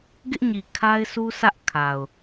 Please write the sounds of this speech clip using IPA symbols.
ɡɪ˦ʔɲi˨ kʰa˦ɪ̯sʰu˦sʰä˦ʔ kʰa˨ʊ̯

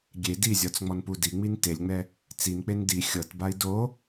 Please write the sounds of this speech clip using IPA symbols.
ɡʲe dizʲɔt͡sŋ͡mɔnpu diŋ͡min telʲŋ͡mɛ | t͡sink͡pen di xʲɤtbai̯ do

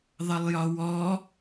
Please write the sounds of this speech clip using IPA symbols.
ðˤəlˠjɒwɔ

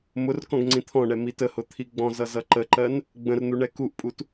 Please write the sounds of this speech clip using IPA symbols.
mʊr kɔ̃ɡŋ͡ǀĩt̪ʰɔ̃ɳɛ mitəhʊ t̪ʰiɡ͡bɔ̃zʌ zʌǃəǃɜn | ɡ͡bə̃rn̪u ɳɛkuʔpʼut

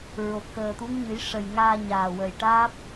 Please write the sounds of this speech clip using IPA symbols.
ɹo˨˩k̚xəː˨˩t̪u˧˥ŋɲɨ˨˩˦j ʂə˨˩jŋaː˧ ɲaː˨˩wə˨˩j ʈaː˦˥p̚

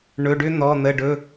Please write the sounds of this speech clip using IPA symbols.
ɳɵ˩˧˩ɖʏ˦ n̪ɔ˩˧˩n̪ə˩˧˩ɖɵ˩˧˩

